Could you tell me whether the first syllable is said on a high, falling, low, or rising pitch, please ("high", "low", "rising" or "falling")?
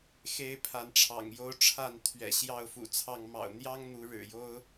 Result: high